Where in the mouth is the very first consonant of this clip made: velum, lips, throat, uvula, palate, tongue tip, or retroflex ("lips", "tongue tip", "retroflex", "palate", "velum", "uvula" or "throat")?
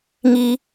velum